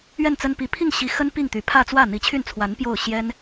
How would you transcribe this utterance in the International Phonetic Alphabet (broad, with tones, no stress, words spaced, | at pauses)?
ɥɛ˥˩nt͡sə˥npi˧˥ pʰi˥˩ŋɕi˧˥xə˥n pi˥˩ŋ t̪y˧˥ pʰä˥˧t͡swä˥˩ n̪i˧˥t͡ɕʰy˥˩nt͡sʰwa˧˥n pjo˥˩ʊ̯ ɕjɛ˥n